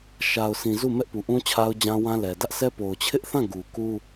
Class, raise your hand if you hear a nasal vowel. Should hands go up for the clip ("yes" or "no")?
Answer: yes